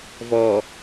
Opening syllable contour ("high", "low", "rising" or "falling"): low